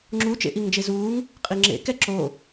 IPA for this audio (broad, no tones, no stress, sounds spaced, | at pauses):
ŋ͡ǁ u t͡ʃ ḛ ʔ i ŋ d͡ʒ e z uː ŋ | qʼ i ŋ͡ǁ ḛ k ɛ ǁ o